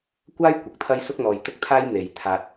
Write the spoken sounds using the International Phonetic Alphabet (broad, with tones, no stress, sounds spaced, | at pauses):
kʷ aː˥ j kʷ ɐ˨ k̚ t̪ʰ ɐ˥ j s ʊ˥ k̚ n̪ ɔː˨ j t̪ ʊ˥ k̚ t̪ʰ aː˥ j n̪ e˨˧ j t̪ʰ aː˧ t̚